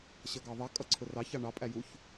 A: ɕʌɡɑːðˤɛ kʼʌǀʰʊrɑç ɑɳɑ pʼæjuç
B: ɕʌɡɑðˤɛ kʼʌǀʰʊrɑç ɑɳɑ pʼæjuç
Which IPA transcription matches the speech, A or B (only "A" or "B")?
B